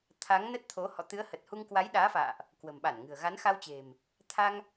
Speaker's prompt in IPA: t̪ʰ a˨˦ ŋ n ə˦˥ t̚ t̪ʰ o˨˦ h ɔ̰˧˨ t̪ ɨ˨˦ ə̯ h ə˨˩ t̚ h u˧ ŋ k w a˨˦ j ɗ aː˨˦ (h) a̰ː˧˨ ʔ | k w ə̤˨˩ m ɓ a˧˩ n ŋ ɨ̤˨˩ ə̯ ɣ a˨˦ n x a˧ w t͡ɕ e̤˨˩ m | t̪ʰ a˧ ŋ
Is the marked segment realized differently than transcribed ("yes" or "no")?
yes